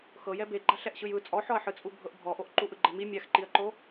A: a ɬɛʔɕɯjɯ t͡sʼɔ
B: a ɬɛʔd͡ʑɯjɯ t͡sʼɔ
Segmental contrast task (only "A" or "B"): A